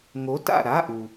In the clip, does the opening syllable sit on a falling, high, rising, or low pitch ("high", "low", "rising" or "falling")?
rising